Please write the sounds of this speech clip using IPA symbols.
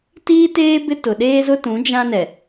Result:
t iː˦ t eː˦ b ɪ˦ t ʊ˨ ɗ eː˦ z ʊ˦ t ũ˨˦ d͡ʒ ã˦ n ɛ˨

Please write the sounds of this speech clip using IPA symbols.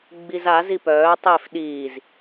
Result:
ɡ͡b i z a z i p œː tˤ e f ɗ iː z

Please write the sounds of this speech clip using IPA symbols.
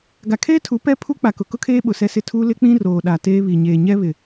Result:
ɡ a˨ kʰ eː˦ tʰ u˨˦ p ɛ˦ pʰ u˦ k͡p a˨ k ʊ˨ k ʊ˦ kʰ eː˦ ɓ ʊ˨ s ɛ˦ s ɪ˦ tʰ u˦ l ɪ˦ k͡p ĩ˦ r oː˨ ɗ a˨ t eː˦ β i˨ ɲ eː˨ ɲ ɛ˦ β ɪ˨

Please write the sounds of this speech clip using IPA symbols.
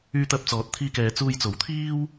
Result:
yː˧ t̪ ɐ˧ p̚ t͡s ɔː˨ t̚ t̪ʰ iː˧ k ɛː˨ t͡s uː˧ j t͡s o˨˥ w t̪ʰ iː˥ w

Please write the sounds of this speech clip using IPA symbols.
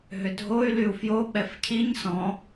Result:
ɦ ʏ dʱ o y̯ l y u̯ f j o ɓ ɛ f cʰ i ɲ s ɔ̃

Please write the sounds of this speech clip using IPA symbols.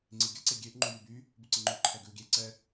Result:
ŋ͡ǀ i ɡʲ ə ǀ e ɡʲ e ʔ ŋ͡ǃ u j y b y | b ʉ ǀ ɪ ŋ͡ǃ ʉ ǃʰ ɛ ɡ ʉ u̯ ɡʲ e ǀ ɛ

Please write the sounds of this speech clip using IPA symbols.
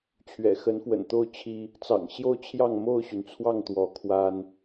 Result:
t͡ɕʰ ɥ ɛ̰˨˩ x ə˨˦ n f w ə̰˨˩ n t̪ o˥˨ ʊ̯ t͡ɕʰ i˦ | t͡s ɑ̰˨˩ ŋ ɕ j o˥˨ ʊ̯ t͡ɕʰ j ɑ˥˨ ŋ m o˥˨ ʊ̯ ɕ y˩ n t͡sʰ w ɑ˥˨ ŋ t̪ w ɔ˨˦ kʰ w a˦ n

